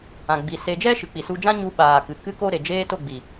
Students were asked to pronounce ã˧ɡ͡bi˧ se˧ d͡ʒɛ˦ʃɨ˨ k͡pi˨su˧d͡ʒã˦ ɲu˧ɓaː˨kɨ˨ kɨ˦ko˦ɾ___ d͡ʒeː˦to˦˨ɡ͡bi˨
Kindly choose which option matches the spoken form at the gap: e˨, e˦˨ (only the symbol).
e˨